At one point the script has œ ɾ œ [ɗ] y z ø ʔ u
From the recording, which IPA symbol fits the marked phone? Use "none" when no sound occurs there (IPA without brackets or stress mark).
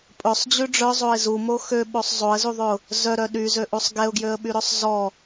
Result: ɗ